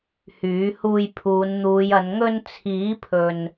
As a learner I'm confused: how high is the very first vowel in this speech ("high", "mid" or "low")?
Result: high